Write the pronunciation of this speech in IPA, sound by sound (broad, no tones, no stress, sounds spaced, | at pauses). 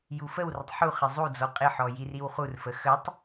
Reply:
j u f ə w r ə tˤ ħ u χ ɪ zˤ u d͡z ɔ qʼ ɪ ħ ɔ j i r i w χ u r f ə x ə tˤ